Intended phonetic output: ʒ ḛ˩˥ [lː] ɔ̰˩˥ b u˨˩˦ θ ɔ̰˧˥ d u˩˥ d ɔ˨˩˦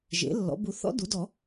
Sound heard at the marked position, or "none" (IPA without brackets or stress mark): lː